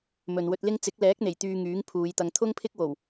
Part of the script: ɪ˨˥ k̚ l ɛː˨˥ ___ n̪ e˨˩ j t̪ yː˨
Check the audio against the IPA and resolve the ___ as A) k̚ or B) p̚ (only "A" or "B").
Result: A